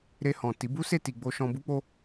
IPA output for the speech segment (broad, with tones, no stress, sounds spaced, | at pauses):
ɾ e˧ h ɔ̃˨ t i˨˦ b u˦ s e˦˨ t i˧ ɡ͡b o˧ ʃ ɔ̃˧ b u˦ k͡p o˦